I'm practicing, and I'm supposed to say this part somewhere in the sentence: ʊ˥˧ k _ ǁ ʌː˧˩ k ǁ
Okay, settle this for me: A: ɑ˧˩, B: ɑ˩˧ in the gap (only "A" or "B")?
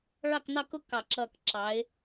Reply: A